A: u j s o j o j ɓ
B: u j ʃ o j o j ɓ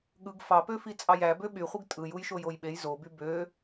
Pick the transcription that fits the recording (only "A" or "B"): B